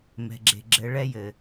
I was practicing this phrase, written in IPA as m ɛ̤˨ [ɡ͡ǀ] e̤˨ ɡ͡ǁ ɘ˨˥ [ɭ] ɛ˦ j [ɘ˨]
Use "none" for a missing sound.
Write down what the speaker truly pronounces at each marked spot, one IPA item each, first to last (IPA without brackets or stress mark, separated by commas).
ɡ͡ǁ, ɭ, ɘ˨